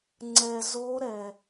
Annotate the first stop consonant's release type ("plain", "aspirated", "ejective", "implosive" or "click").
click